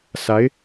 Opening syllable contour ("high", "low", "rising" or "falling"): rising